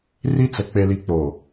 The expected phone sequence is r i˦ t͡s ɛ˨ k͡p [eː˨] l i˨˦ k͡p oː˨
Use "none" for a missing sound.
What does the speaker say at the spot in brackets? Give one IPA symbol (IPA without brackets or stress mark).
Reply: e˨